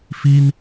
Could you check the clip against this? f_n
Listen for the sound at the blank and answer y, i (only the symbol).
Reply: i